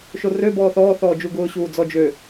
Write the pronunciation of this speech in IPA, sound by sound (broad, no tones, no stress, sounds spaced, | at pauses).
ʃ o r ø b ɔː θ ɔː θ ɔː d͡ʒ u ɡ ʊː ɕ uː d͡z ɔ d͡ʒ ø